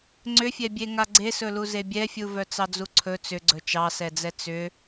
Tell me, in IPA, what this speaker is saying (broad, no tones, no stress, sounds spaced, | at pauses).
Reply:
ŋ͡ǀ ʏ fʲ ɛ bʲ e ŋ a ɡ͡ǀ e s ɵ l u z e bʲ ɛ fʲ u v œ t͡s ɑ d͡z u ǀʰ ɵ t͡s ʏ ɡ͡ǀ ɵ t͡ʃ ɑ s ɛ d͡z ɛ t͡s ʏ